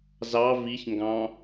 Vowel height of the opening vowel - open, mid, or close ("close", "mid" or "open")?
open